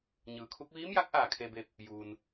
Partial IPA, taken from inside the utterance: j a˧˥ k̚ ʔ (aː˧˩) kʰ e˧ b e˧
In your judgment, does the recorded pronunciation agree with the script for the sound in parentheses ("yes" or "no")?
yes